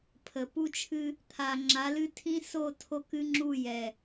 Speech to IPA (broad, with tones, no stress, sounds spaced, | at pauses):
pʰ ə˨ p u˦ t͡ʃʰ ɨ˦ | t̪ʰ a˨ ŋ͡ǁ a˨˦ l ɨ˦ tʰ ĩ˦ s o˦˨ tʰ o˦ k ɨ˦ ŋ͡ǁ u˦˨ j ɛ˨